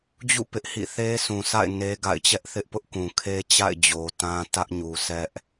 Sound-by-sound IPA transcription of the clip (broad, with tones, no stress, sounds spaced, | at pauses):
d͡ʑ ṵ˦˨ p ɪ˦ ʔ h ḭ˦˨ θ e˦ s ũ˨ s a̰˦˨ ɪ̯ n e˦ ɡ a̰˦˨ ɪ̯ t͡ɕ ɛ˦ ʔ θ ɪ˦ ʔ p ʊ˦ ʔ k ũ˨ kʰ e˦ t͡ɕ a̰˦˨ ɪ̯ d͡ʑ o˨ t ã˦ t ä˦ ʔ ɲ u˨ s ɛ˦ ʔ